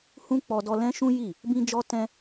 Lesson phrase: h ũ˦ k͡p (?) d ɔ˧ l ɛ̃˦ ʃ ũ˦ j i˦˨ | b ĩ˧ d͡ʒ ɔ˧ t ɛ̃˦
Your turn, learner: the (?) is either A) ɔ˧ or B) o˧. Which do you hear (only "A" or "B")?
A